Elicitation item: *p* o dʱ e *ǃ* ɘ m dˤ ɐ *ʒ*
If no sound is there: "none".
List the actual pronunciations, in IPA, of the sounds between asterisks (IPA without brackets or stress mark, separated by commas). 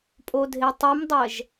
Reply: pʼ, tˤ, ʒ